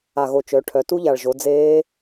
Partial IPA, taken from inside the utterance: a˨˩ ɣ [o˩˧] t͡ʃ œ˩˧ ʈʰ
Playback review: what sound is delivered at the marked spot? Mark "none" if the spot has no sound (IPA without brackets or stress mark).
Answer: o˨˩